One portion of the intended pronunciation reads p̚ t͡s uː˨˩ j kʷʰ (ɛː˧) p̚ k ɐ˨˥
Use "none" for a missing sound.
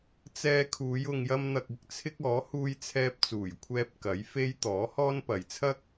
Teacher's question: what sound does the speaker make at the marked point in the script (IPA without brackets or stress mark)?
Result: ɛː˧